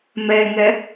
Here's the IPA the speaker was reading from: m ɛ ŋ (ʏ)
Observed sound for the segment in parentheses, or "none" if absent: ɛ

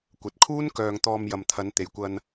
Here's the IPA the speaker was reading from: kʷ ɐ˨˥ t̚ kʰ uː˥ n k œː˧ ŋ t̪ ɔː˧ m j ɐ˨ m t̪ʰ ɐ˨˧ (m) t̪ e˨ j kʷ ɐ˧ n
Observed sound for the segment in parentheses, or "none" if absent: n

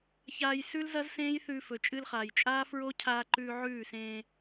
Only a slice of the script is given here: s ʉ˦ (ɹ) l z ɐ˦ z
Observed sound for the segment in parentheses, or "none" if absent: none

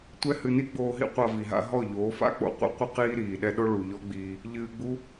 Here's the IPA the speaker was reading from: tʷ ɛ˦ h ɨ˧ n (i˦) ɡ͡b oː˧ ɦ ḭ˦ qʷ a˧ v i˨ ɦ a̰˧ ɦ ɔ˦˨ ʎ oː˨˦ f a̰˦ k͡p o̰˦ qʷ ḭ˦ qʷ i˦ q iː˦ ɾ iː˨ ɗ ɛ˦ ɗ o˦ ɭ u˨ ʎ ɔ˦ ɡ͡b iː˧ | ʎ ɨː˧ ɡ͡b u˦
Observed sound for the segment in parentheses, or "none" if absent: i˦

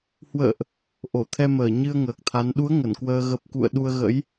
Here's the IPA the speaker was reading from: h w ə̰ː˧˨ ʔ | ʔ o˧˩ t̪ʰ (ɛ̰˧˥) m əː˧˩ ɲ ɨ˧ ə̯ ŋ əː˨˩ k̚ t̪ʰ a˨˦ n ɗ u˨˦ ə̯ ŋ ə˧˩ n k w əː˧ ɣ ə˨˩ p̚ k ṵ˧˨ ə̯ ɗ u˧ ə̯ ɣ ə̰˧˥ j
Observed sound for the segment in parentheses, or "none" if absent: ɛ˧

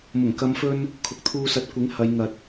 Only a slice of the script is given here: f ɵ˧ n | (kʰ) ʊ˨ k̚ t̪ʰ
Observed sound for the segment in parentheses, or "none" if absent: kʰ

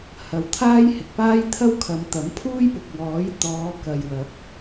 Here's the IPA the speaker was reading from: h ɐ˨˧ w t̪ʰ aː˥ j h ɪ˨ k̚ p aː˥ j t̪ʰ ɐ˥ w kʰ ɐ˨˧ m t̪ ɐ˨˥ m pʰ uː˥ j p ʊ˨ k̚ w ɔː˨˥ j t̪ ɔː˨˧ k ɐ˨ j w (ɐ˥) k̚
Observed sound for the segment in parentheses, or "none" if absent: ɐ˨˥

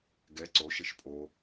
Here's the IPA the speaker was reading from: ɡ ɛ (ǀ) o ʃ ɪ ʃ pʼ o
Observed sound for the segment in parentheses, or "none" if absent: ǀ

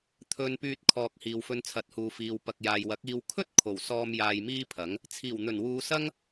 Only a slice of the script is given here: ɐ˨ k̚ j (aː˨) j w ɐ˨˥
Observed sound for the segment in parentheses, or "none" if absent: aː˨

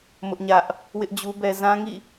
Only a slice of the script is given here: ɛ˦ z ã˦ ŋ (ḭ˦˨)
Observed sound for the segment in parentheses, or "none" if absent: ḭ˦˨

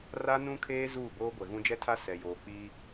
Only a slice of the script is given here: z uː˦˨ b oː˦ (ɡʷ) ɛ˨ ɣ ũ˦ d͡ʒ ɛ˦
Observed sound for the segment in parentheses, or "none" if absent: ɡʷ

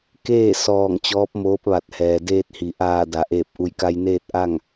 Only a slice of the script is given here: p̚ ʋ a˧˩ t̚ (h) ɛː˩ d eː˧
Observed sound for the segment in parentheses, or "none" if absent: h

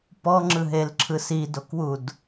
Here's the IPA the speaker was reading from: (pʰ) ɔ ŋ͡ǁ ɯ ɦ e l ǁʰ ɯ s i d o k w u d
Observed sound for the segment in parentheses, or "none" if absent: p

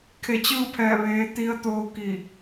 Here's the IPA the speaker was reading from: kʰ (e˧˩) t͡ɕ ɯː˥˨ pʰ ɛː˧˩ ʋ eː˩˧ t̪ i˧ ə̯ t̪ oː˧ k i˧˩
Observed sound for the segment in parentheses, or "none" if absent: e˧˩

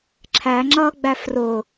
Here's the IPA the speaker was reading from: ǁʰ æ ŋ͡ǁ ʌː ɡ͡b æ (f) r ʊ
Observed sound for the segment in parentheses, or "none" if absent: f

